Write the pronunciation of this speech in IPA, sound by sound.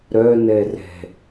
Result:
ɾ œ n ɛ r ɛ̤

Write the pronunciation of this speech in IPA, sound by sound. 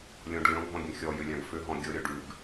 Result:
lʲ ɔ̃ ɖ lʲ ɔ̃ ɡʱ ɔ̃ ɡʲ ə̃ xʲ ɔ j ʏ lʲ ã ɡ f ʏ ɦ ɔ̃ ɡʲ ɤ ɾʲ ɔ ɖ ʉ ɡ

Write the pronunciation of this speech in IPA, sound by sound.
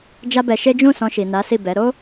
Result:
d͡ʒ a˦ b ɛ˧ ʃ e˦ d͡ʒ ũ˦˨ s ɔ̃˧ ʃ i˨ n a˨˦ s i˦˨ b ɛ˨˦ ɾ o˦

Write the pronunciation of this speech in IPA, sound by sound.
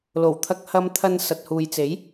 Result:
l o˨˩ w t̪ʰ ɐ˧ k̚ h ɐ˧ m t̪ʰ ɐ˧ n s ɐ˨ t̚ h uː˨ j t͡s e˨˥ j

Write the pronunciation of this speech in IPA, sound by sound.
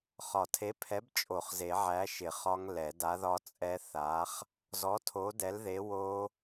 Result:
χ ɒ˨˩˦ tʰ e˨˥ pʰ ɛ˨˥ b t͡ʃʼ o˨˩˦ χ z e˨˩˦ ʕ æ˨˥ ʃ ɪ˨˩˦ χ ɒ˦˥ ŋ l ɛ˨˩˦ d a˨˥ ð ɒ˦˥ t͡sʼ ɛ˦˥ θ a˨˥ χ | z ɔ˨˥ tʰ o˨˥ d ɛ˨˥ l ð e˨˥ w o˦˥

